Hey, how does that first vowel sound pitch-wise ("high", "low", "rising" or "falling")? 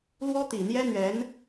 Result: high